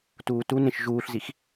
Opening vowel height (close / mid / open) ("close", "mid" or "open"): close